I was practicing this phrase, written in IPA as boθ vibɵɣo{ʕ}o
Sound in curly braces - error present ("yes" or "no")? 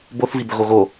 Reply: yes